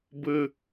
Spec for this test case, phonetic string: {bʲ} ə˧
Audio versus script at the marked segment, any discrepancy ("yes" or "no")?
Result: yes